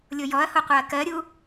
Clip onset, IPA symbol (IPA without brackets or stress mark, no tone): lʲ